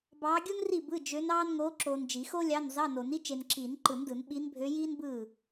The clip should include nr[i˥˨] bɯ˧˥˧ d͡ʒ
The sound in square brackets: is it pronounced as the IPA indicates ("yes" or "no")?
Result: yes